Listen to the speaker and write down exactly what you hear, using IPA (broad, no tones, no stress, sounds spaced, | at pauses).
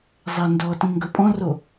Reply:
zˤ ɛ n d ɔ t ĩ ŋ ɡ ɵ pʼ ɔ̃ r o